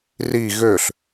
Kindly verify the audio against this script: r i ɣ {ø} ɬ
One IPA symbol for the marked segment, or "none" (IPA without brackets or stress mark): ø